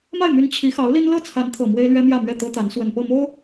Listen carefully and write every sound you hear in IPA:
m a˥˩ ɪ̯ m y˧˥ n t͡ɕʰ i˧˥ x ɑ˧˥ ʊ̯ l i˥ n l ɤ˥˩ t͡sʰ a˧˥ n t̪ʰ ɤ˨˩ m w e˥ ɪ̯ l ɥ ɛ˥ m j ä˥˧ m ɥ ɛ˥˩ t̪ ɤ˥ t̪ a˧˥ n s w ə˨˩ n p ɤ˥˩ m o˥ ʊ̯

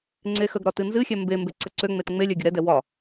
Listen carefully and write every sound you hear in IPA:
ŋ͡ǀ e x ə ɡ ɾ ɒ t ɨ n z ɨ xʲ ɛ m b e m b e ǀ ə ǀ ø ŋ͡m e t ŋ͡m e lʲ ɛ ɡʲ ə ɾ ɛ d ɛ w ɒ

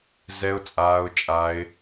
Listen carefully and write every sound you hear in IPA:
z ɛ˧ ʊ̯ t͡sʼ aː˧ ʊ̯ t͡ʃʼ a˧ ɪ̯

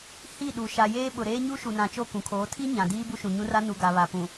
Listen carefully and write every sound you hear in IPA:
h i˦˨ ɗ u˨ ʃ a˨ j eː˦ ɓ ʊ˨ ɾ eː˦ ɲ u˦ ʃ u˨ n ã˨ t͡ʃ o˦˨ k ũ˨ kʰ oː˨˦ tʰ i˦ ɲ ã˨ d iː˦ b u˦ ʃ ũ˨ ɲ ũ˦ r a˦ n u˨ ɡ a˨ β a˨ p ũ˨

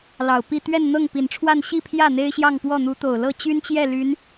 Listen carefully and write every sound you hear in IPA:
l ɑ˨˩ ʊ̯ p i˥˧ t̪ ɥ ɛ˥˧ n n̪ ɤ˥˩ ŋ p i˨˩ n ʈ͡ʂʰ w a˥˧ n ɕ i˥˧ pʰ j ä˥˩ n̪ e˥ ɪ̯ ɕ j ɑ˥˧ ŋ p w ɔ˥˩ n̪ u˧˥ t̪ o˨˩ ʊ̯ l ɤ˥˩ t͡ɕ y˥ n t͡ɕ j ɛ˥˩ l y˧˥ n

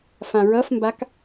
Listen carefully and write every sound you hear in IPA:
f ã ɹ ʌ f m b a k

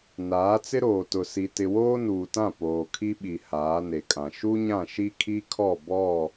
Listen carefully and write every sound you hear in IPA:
n aː˨˦ t͡s ɪ˦ ɾ oː˨ t ʊ˨ s i˨ t ɪ˨ w oː˦ n uː˨ t ã˦˨ p oː˨ kʰ i˦ ɓ i˨ h aː˨˦ n e˨ kʼ ã˨ ʃ u˦ ɲ ã˦˨ ʃ i˦ kʰ i˦ kʰ ɔ˦˨ b ɔ˦˨

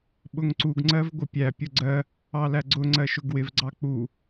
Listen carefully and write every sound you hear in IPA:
ɓ ʊ ŋ ǀ u ɡ ŋ͡ǀ ɜ v ɡʷ ɪ pʲ æ pʲ ʊ ɡ͡ǀ ɜ | ɑ l æ ɡ͡ǀ ʊ ŋ͡ǀ ɜ ʃ ʊ ɡ w ɪ v ɡ͡ǀ ɑ k͡p u

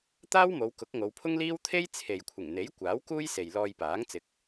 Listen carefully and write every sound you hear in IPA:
t̪ aː˥ w m o˨˧ w k ʊ˨˥ k̚ ŋ o˨˧ w pʰ ʊ˥ ŋ l iː˥ w t̪ʰ e˥ j t͡sʰ e˨ j kʷʰ ɪ˨˩ ŋ n̪ e˨˥ j kʷ aː˨˥ w k uː˥ j s e˨ j l ɔː˧ j p aː˨˥ ŋ t͡s ɪ˨ k̚

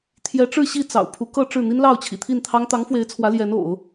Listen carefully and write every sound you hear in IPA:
t̪ʰ j ɛ˧˥ ʈ͡ʂ ɻ̩˥˧ ɕ i˥˩ t͡s ɑ̰˨˩ ʊ̯ pʰ u˧˥ k ɤ˥˧ ʈ͡ʂ ɻ̩˥˩ n̪ i˥ n l ɑ˥˩ ʊ̯ t͡ɕʰ ḭ˨˩ t̪ʰ i˥˩ n t̪ʰ ɑ˥ ŋ t̪ ɑ˧˥ ŋ f w e˧˥ ɪ̯ t͡sʰ w ä˧˥ l j ɛ˧˥ n o̰˨˩˦ ʊ̯

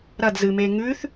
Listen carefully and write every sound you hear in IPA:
ɾ ɐ d z ɨ m e ŋ ʉ θ

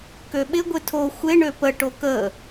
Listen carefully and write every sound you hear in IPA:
k ø ɓ ɪ ɡʷ ɪ tʰ o xʷ ɪ ɳ ø p ə ʈ o k ə

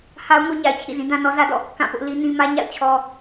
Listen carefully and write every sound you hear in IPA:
h a˦ ʊ̯ ŋ o˦ ɲ a˨ ɪ̯ t͡ɕʰ ḭ˦˨ z ĩ˦ d ã˦ n ɔ˦ z ä˦ d ɔ̰˦˨ | k ã˦˨ p ʊ˦ ʔ l i˦ n ĩ˦ m ä˦ ɲ a̰˦˨ ʊ̯ t͡ɕʰ ɔ˦

